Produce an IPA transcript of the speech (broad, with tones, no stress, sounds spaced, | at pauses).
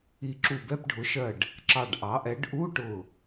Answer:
i˧˩ ǁ u˧˩ b ɛ˧˥˧ p ɖʱ ʊ˩˥ ʃ ɜ˧˩ ɖ | ǁ ɑ˧˩ ɖ ʔ ɑ˩˥ ʔ ɛ˩˥ ɖ ʔ u˧˥˧ ʈ ʊ˧˩